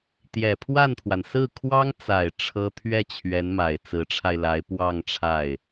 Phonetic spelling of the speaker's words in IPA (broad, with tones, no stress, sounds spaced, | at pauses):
t̪ j ɛ˨˩ pʰ w a˥˩ n t̪ʰ w a˩ n s ɹ̩˥˩ kʰ w ɑ˥ ŋ t͡s a˨˩ ɪ̯ ʈ͡ʂʰ ɤ˥ t̪ʰ ɥ ɛ˥˩ t͡ɕʰ ɥ ɛ˧˥ n m a˨˩ ɪ̯ t͡s ɹ̩˧˥ ʈ͡ʂʰ a˧ ɪ̯ l a˧˥ ɪ̯ p w ɑ˥˧ ŋ ʈ͡ʂʰ a˥˩ ɪ̯